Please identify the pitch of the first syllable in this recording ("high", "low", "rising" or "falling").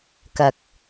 low